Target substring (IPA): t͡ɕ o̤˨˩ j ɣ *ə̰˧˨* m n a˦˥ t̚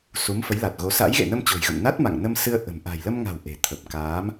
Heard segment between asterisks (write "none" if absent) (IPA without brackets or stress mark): ə̰˧˨